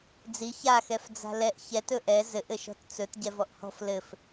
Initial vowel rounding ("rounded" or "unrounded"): unrounded